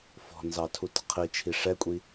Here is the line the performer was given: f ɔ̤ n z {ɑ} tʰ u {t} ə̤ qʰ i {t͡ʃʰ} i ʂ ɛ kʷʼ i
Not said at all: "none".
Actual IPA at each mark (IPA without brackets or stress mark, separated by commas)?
ɑ, t, t͡ʃʰ